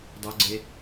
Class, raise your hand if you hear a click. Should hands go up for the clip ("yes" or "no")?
yes